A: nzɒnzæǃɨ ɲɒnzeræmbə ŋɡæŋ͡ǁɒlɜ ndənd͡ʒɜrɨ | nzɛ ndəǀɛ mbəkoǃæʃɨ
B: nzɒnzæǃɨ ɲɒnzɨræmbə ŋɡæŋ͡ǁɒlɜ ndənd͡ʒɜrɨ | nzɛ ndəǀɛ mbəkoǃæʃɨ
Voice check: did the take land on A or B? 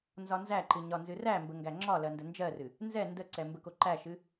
B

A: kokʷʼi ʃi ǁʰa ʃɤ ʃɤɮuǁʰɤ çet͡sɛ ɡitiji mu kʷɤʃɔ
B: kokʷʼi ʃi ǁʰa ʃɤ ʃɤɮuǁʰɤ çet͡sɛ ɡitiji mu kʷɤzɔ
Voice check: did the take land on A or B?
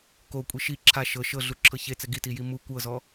B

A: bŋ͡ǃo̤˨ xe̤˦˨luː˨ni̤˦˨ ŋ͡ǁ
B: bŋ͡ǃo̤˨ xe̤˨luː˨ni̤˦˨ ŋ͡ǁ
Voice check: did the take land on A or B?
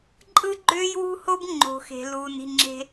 B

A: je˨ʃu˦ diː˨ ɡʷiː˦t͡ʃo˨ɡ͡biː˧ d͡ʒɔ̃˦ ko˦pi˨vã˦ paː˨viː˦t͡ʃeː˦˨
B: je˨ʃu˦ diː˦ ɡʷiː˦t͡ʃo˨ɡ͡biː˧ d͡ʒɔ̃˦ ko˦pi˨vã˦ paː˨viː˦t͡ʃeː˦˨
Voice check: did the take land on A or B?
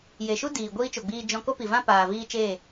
A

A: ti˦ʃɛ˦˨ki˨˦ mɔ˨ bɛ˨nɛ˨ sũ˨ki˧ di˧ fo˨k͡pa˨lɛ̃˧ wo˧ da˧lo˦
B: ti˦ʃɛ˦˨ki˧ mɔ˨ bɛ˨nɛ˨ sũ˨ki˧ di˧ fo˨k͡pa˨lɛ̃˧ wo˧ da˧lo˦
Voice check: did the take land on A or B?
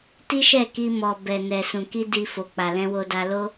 B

